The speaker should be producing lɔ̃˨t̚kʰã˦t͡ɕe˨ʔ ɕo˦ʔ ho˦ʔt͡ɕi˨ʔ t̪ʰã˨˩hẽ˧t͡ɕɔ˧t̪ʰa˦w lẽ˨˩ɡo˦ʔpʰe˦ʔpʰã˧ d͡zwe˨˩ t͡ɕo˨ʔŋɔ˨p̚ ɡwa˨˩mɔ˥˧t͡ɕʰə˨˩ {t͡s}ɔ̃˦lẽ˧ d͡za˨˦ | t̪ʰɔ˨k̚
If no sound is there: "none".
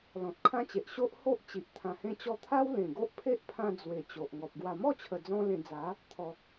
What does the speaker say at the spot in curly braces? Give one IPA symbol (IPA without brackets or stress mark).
d͡z